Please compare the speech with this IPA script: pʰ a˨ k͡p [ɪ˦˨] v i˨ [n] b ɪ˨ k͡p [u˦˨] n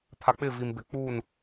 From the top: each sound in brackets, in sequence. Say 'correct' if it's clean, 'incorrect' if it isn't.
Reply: correct, incorrect: m, correct

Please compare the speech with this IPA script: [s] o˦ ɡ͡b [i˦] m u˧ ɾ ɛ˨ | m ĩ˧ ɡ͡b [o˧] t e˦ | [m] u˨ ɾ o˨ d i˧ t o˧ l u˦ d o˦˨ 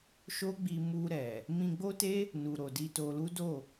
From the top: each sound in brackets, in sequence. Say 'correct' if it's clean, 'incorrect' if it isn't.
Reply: incorrect: ʃ, incorrect: i˧, incorrect: o˦, incorrect: n

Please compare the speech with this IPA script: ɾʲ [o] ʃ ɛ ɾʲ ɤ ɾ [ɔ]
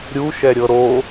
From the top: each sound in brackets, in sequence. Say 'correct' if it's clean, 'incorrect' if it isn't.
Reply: incorrect: u, incorrect: o

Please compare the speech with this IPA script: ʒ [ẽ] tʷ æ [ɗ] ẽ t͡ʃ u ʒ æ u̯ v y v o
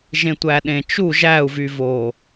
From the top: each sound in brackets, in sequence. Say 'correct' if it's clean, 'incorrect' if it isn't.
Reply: correct, correct

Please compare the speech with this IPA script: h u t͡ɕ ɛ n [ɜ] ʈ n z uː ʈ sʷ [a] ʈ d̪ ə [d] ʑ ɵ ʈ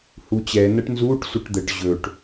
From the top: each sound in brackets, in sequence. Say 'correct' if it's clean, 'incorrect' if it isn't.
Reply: correct, incorrect: ə, incorrect: ʈ

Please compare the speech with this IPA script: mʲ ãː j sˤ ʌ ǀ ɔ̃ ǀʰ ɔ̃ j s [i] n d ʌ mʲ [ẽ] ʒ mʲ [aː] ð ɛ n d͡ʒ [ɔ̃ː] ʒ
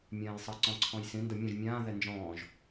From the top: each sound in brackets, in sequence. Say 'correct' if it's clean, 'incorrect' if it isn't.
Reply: incorrect: ĩ, incorrect: ɛ̃, incorrect: ãː, correct

